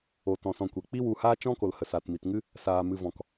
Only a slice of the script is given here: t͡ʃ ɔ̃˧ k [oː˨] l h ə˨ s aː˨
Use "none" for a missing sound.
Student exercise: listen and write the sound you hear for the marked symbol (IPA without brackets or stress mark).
o˨